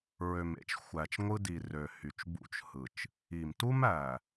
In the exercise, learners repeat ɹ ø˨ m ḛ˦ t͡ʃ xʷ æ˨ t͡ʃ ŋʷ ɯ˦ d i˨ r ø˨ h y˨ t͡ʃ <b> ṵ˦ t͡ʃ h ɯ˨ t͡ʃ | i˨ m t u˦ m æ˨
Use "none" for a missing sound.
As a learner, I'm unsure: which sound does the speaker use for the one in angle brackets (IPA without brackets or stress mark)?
b